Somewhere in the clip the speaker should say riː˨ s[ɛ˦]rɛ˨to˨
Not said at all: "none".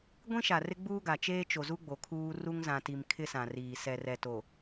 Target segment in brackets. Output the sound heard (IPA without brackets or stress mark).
ɛ˨